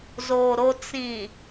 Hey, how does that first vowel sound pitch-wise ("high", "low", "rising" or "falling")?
low